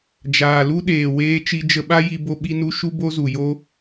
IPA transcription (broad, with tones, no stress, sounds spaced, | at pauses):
d͡ʒ aː˨ l u˦ ɗ eː˨ w eː˦ t͡ʃ i˧ d͡ʒ ə˧ ɓ a˦ j i˧ b o˧ ɓ i˦ n u˦ ʃ u˦ b o˦ z u˨ j o˦